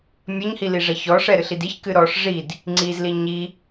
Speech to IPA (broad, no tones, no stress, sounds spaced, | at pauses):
mʲ ɐ ɲ h i l i ʐ ɐ ç ɔ ʂ ɛ ɾ ɨ ɬ i d i ç k ɨ ɾ ɔ ʂ ʐ i d | ŋ͡ǀ i z l i ɲ i